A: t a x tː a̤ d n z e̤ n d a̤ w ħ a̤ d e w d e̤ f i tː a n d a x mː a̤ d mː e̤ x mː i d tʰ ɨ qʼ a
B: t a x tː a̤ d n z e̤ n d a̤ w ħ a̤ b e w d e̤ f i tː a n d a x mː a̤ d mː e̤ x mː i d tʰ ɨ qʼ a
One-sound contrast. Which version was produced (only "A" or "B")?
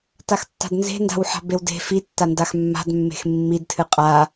B